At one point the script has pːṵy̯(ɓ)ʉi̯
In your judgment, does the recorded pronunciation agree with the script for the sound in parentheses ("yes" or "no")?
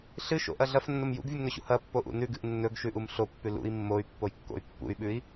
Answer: yes